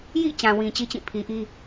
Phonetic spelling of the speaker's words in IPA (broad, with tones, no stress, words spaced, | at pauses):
jḭ˦˨t͡ɕã˨ wĩ˨t͡ɕi˦t͡ɕĩ˦˨ pʰi˨ʔi˦